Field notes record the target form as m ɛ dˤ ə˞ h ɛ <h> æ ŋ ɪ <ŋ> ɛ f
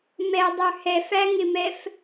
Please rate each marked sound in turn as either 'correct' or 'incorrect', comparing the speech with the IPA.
incorrect: f, incorrect: m

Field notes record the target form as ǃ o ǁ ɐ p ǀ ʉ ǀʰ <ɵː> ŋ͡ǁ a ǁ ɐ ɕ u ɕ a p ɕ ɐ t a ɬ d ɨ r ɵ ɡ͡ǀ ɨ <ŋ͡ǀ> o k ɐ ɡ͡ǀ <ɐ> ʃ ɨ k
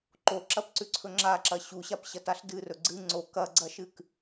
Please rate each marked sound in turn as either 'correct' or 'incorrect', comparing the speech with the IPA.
incorrect: ɵ, correct, correct

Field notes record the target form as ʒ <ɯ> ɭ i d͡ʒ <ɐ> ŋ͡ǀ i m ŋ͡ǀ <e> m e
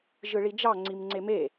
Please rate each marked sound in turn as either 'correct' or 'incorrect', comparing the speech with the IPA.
correct, incorrect: ɑ, correct

